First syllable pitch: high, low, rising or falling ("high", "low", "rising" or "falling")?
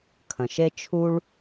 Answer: low